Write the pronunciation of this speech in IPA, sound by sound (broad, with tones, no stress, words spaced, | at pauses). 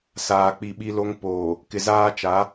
saː˨ k͡pi˨ɓi˦lo˦ŋ poː˨ | kɪ˨zaː˦ t͡ʃa˨˦